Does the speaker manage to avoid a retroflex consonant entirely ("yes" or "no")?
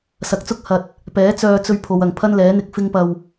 yes